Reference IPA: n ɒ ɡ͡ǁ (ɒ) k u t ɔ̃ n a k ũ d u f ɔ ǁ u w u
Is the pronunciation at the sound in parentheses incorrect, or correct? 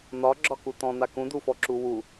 correct